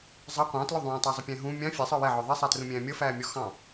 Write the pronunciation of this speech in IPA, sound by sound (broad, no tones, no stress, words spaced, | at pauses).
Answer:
zˤɑ qʷɑ̃tlʊ ðˤũːtˤʊːzˤʊpʲæ̃ ɦũ mʲɑ̃ fʲæsˤə˞ wɛʕɔ ðˤɛsˤætrũmʲæ̃ː mʲʌfæːmʲɔ xɑ̃